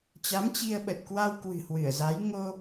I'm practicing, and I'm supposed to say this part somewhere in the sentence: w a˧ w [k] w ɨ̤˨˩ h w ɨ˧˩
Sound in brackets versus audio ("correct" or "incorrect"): correct